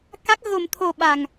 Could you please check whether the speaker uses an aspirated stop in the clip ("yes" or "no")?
yes